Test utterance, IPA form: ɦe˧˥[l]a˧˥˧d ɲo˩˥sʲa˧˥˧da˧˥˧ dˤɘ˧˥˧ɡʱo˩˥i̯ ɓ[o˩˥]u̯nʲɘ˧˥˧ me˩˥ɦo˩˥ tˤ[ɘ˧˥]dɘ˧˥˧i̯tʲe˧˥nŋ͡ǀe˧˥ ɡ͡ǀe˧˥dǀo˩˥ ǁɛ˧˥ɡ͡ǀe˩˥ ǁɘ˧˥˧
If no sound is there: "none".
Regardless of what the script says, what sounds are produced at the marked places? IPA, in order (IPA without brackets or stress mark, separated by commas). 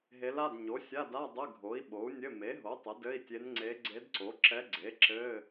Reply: l, o˩˥, ɘ˩˥